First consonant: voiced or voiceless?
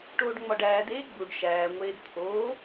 voiceless